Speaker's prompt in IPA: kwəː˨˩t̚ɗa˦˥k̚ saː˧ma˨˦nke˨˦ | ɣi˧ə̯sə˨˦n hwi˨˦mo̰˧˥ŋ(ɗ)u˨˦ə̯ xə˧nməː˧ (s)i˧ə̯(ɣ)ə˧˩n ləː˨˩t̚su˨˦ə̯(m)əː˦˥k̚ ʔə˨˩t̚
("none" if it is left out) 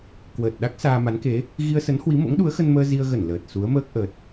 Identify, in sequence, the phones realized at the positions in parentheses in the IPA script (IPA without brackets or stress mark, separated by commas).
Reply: ɗ, z, ɣ, m